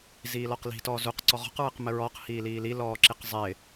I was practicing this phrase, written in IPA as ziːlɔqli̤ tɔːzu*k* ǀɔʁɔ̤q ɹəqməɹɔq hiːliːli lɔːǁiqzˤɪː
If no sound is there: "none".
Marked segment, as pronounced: q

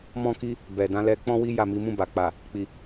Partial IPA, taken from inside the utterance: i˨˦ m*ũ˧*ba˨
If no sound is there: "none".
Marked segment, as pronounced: ũ˦˨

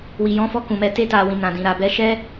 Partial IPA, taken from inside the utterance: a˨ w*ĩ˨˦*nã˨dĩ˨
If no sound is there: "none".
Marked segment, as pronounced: ĩ˨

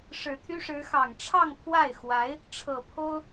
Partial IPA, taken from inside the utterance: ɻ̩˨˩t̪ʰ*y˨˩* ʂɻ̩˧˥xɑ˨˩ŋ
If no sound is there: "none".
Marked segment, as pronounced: y˥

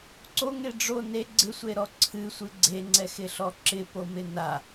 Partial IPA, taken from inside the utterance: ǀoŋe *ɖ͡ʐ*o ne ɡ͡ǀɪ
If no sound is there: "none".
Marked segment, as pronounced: ɖ͡ʐ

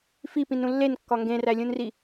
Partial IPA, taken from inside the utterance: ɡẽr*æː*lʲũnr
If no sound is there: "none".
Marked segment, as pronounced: æ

